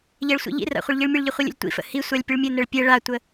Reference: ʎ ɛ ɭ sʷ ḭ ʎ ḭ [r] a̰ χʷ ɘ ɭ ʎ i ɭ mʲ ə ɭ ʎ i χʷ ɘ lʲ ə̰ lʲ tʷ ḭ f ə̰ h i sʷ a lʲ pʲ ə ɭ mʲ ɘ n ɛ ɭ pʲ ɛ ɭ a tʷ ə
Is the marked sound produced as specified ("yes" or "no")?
yes